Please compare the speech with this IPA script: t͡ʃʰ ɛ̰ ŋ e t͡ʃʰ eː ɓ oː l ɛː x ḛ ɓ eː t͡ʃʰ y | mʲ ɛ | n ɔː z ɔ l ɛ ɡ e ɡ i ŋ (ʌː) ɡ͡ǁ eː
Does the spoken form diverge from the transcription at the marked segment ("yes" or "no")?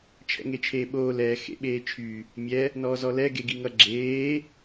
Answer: yes